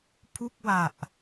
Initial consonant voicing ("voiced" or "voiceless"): voiceless